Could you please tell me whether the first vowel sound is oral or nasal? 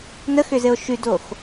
oral